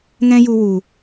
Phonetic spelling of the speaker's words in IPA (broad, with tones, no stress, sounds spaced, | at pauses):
ŋ ɛ̃˦ j u˧ w u˨